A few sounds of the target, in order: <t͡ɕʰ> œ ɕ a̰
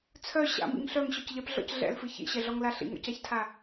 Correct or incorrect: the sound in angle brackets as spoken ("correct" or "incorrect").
incorrect